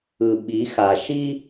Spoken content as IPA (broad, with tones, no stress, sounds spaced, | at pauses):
ɯ˨ ɓ i˨˦ x a˨ ʃ i˦